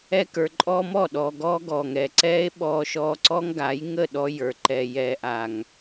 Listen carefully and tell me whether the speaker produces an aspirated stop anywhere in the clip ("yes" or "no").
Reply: no